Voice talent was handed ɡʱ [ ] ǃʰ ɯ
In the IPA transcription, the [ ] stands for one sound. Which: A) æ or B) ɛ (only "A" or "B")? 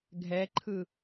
B